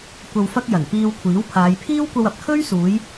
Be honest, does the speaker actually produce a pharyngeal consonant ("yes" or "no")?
no